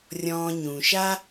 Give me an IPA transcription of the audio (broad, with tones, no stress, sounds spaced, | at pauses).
rʲ ɔ̃ː˨ ɲ ũ˩ ʃ a˦